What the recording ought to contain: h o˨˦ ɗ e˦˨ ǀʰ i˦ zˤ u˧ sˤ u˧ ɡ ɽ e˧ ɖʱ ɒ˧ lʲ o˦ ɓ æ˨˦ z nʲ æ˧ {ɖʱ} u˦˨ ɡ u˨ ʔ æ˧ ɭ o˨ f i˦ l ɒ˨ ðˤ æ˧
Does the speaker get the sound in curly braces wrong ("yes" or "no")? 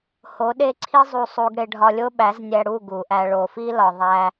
yes